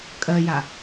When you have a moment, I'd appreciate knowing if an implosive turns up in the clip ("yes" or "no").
no